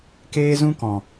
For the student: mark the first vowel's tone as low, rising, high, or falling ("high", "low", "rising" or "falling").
high